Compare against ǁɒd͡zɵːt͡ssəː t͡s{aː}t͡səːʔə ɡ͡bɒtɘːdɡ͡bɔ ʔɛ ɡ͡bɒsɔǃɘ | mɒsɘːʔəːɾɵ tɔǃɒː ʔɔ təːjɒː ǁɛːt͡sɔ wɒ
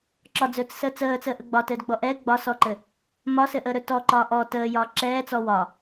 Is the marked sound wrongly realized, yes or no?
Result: yes